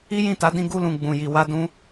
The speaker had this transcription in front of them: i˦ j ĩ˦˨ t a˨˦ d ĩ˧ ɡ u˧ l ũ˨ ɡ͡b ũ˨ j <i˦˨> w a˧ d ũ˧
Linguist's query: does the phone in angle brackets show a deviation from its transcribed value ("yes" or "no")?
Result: yes